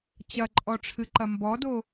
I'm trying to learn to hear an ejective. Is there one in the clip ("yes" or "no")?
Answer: yes